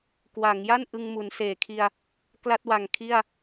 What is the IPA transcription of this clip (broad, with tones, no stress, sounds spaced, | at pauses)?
k w a˩˦ ŋ j a˥˩ n ʔ ɯ˧ ŋ m u˩˦ n s eː˨˩ kʰ i˧ a̯ | k l a˥˩ t̚ w a˨˩ ŋ kʰ i˥˩ a̯